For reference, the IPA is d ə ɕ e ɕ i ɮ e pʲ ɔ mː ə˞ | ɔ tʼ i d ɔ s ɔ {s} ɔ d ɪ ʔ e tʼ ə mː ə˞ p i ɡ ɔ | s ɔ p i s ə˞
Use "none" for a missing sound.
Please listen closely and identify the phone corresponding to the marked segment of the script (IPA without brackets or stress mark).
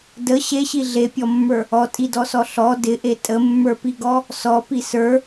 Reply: ɬ